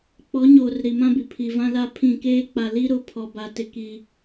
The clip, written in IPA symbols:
k͡p ɔ˨˦ ɲ oː˨ r ɾ i˨ m ã˦ b i˨ pʰ i˨ v ã˦ l a˦˨ pʰ ĩ˦˨ k eː˦ k͡p a˨ l i˦ ɾ ʊ˨˦ pʰ ɔ˨ b a˨ t ɪ˨ k i˨

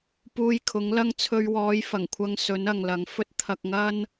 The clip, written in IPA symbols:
p uː˧ j kʰ ʊ˨˥ ŋ l ɐ˥ ŋ t͡sʰ ɵ˧ ɥ w ɔː˨˧ j f ɐ˨˩ ŋ kʷʰ ɐ˧ ŋ s ɵ˨˥ n ɐ˨ ŋ l ɐ˨ ŋ f ɵ˥ t̚ t̪ʰ ɐ˧ k̚ ŋ ɐ˥ n

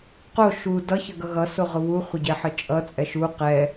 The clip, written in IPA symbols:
q o ʃ u d ʌ ç ə ɡ ʌ ɣ ʌ s o ʁ ʊ β u χʷ ə ɟ ɛ ħ ə t͡ʃʼ ʌ t͡sʼ ɛ ʃ u q ɛ

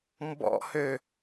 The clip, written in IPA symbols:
m b ɔ̰ h ø

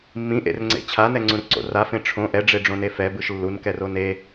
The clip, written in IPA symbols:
mː ĩ ʔ ḛ r ŋ͡ǀ ḛ t͡ɕʰ a n ɛ ŋ͡ǀ ũ r ǀ o̰ r a f ẽ ʈ͡ʂʰ õ ʔ ɛ ɖ͡ʐ e ɖ͡ʐ õ n e f ɛ b ɯ ʃ lː u n k ɛ r o n e

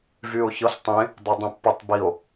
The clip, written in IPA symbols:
v y o̯ ç ɤ ɬ tˤ ẽ | dˤ ɤ dˤ ẽ pː ɤ tˤ b i o̯

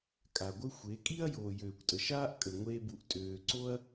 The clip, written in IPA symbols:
kʼ a˨ ɡʷ ə˦ xʷ e˨˦ kʼ i˦ ɐ̯ j oː˨ j øː˨ kʷ tʼ ə˨ ʃ aː˦ ʔ kʼ ə˨ ŋʷ eː˧ b u˨ ʔ tʼ øː˨ ǀ o˦ ɐ̯

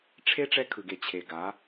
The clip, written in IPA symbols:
ʈ͡ʂʰ e˦ ʈ͡ʂ ɛ˦ kʰ ɯ˨ ɡ e˨ t͡ɕʰ e˨ ɡ a˨˦

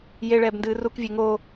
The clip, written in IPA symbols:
j e ɭ ɛː b n d ɨː r u k vʲ e ŋ oː

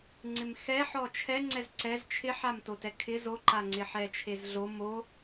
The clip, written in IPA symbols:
ŋ͡ǀ ɪ m x ɛ ħ ɔ t͡ʃʰ ɛ ŋ͡ǀ ɛ z ǀ ɛ z t͡ʃʰ ɪ ħ a m t o t ɛ kʰ ɪ z o ǃ a ŋ͡ǀ ɪ ħ ɛ t͡ʃʰ e z ɮ o m o

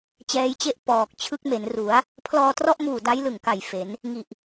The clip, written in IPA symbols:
t͡ɕ ɛː˦˥ j t͡ɕ e˥˩ ʔ p ɔː˨˩ k̚ t͡ɕʰ ɯ˦˥ k̚ m e˩˦ n r u˩˦ a̯ | pʰ l ɔː˧ t r ɔ˥˩ ʔ m uː˨˩ d a˦˥ j l ɯ˨˩ ŋ k a˨˩ j f e˩˦ n | ŋ i˨˩ ʔ

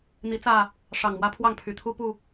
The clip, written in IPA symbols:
n̪ i˨˦ t͡s ä˥˨ | ʂ ɑ˨˩ ŋ m w ä˦ pʰ w ɑ˥˨ ŋ pʰ y˨˩ t̪ʰ u˦ p u˨˩

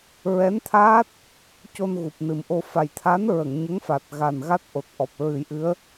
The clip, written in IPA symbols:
ɹ ɛ˧˥ n t̪ʰ aː˦˥ t̚ | c o˧ n ɣ u˨˩ p̚ n ɨ˨˩ m ʔ o˧ f a˨˩ j t̪ʰ a˧˥ n ɹ ə˨˩˨ ŋ ɲ ə˧˥ ŋ f a˨˩ t̚ ɣ a˨˩ n ɣ a˦˥ t̚ ʔ o˨˩ t̚ ʔ ɔ˨˩ p̚ ɹ ɨ˨˩˦ j ʔ ɨ˧˥ ə̯

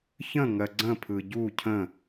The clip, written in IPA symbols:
ç ə̃ ŋ ɜ ɡ͡ǀ ə̃ pʰ ɯ ɟ u cʰ ə̃

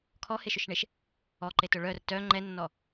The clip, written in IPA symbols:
kʰ ɔ h e ʃ ʊ ʃ ɳ e ʃ | ɔ ǃ e t ʊ ɭ œ r t œ ŋ͡ǃ ɛ nː ɔ

